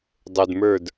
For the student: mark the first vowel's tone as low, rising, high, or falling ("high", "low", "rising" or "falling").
low